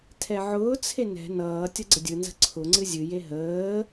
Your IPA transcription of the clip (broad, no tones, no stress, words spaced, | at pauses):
tʰɛʕʊːt͡sʰe nɛ̤ nʌː tʲʌɡ͡ǀədʲɯnzə̤ ǀʰʊŋ͡ǀɨ zʲɨje ɦəː